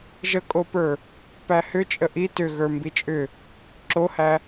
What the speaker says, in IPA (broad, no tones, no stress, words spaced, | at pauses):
ʒəkʼopə˞ | pæhʏt͡ʃʼə ʔi tʏ ɣə˞mbit͡ʃʼʏ | ǁohæ